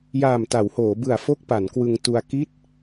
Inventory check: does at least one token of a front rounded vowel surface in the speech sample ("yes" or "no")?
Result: no